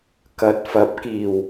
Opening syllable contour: rising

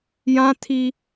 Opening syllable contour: high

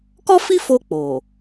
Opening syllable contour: high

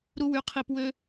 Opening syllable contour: high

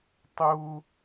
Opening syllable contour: high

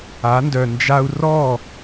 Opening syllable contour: rising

